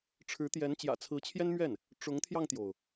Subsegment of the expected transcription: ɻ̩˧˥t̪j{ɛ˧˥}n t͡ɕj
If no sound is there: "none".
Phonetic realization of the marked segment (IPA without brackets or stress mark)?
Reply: ɛ˧˥